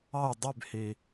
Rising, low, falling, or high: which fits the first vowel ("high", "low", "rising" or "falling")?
falling